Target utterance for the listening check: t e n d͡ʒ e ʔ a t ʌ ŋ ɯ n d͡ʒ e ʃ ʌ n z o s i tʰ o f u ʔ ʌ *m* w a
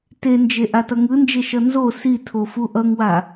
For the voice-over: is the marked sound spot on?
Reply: no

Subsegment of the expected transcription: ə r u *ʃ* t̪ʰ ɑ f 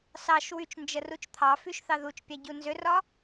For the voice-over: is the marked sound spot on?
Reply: no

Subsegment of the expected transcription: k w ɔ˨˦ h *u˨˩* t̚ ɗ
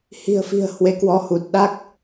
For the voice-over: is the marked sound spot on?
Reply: yes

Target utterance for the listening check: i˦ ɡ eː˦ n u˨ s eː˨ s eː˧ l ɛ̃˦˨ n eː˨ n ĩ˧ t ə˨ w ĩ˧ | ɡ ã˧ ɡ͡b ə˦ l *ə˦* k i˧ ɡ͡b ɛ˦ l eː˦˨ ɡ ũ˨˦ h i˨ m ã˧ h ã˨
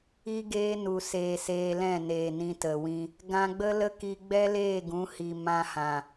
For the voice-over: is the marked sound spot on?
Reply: yes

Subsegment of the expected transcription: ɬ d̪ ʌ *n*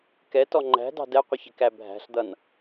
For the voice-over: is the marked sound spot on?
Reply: yes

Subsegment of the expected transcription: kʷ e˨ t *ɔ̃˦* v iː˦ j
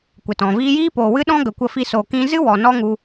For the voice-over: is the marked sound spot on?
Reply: no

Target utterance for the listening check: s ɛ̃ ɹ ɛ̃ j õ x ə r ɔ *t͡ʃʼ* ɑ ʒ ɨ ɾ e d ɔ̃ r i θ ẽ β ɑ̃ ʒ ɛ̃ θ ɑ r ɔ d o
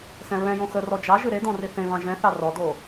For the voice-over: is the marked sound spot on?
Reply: no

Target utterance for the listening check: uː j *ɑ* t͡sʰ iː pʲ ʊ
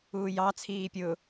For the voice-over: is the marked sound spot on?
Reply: yes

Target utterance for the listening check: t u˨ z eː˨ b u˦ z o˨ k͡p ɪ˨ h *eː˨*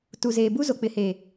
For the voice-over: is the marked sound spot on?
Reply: yes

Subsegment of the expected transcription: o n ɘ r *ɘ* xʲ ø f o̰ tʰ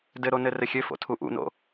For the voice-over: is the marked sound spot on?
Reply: yes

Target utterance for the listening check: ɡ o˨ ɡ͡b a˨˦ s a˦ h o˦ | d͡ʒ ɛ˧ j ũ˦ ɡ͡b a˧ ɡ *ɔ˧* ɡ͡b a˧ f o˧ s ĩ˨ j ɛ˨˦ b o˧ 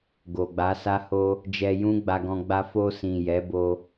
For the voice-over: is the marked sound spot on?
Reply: no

